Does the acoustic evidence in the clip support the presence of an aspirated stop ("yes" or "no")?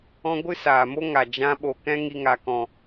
no